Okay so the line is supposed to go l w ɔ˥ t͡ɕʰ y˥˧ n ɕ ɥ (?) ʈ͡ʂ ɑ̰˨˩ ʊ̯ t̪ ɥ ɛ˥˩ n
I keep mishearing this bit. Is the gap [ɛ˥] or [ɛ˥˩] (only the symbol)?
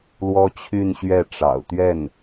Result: ɛ˥˩